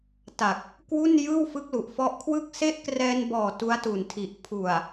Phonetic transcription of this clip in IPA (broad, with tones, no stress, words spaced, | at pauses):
ta˨˩k̚ | kwu˥˩n jɯː˥˩wfɯ˦˥k̚lu˨˩ʔ fɔ˦˥ʔkʰwɯ˥˩k̚ se˦˥ʔkrɛː˧nbɔː˨˩ tu˦˥a̯tu˨˩ntʰi˨˩ʔ pʰu˨˩a̯